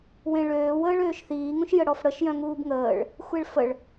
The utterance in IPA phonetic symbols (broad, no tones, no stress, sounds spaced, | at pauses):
w ẽ ɭ øː w əː ɭ øː ʃ θ iː ŋ ũ ʃ j ə ɽ ɔ f ɽ ə ʃ j œ̃ ŋ uː b ŋ əː ɭ | xʷ e ɭ f ə ɭ